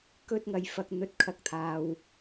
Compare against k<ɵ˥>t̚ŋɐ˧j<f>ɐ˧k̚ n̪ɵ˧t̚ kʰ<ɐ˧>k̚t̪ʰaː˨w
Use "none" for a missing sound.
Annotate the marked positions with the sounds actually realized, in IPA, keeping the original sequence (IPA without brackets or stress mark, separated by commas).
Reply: ɵ˥, f, ɐ˨